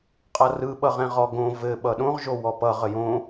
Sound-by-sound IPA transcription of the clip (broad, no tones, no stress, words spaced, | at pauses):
qʼʌrɯ ɓʌʁɛ̃ʁɔɡõ vɘ ɓʌɗõʁ ʒowɔpʌ ʁəjõ